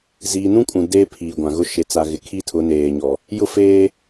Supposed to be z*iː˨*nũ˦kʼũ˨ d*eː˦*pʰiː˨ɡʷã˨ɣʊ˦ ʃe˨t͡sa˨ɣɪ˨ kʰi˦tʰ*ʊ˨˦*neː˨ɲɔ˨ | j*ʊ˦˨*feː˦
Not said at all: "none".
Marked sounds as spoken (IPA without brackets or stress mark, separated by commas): iː˨, eː˦, ʊ˨˦, ʊ˦˨